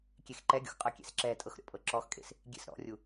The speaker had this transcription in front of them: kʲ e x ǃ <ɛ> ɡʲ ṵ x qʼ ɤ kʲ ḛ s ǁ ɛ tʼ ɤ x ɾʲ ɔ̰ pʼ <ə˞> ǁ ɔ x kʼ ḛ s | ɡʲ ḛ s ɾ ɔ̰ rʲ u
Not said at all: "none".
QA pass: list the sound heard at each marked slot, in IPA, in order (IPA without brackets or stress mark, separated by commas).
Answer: ɛ, ɤ